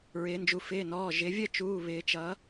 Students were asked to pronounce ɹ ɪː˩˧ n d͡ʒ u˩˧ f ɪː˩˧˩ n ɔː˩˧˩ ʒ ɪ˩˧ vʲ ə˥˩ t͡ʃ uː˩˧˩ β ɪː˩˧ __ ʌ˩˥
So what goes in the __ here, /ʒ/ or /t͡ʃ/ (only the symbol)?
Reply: t͡ʃ